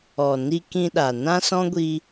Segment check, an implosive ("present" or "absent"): present